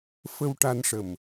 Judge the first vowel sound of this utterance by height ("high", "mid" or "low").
mid